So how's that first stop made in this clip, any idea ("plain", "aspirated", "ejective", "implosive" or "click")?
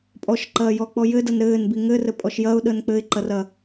ejective